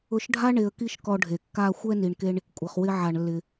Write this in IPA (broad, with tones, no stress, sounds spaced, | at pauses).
ʊ˧ ʃ ɖʱ a˥ ɳ e˧ ə̯ k i˥ ʃ k ɔ˧ ɖʱ e˩ kː a˧ xʷ ɛ˥ n i˩ ɳ k e˧ ɳ | kʷʼ ɪ˩ χ w ɪ˧ ʕ a˩ ɳ lː ɪ˩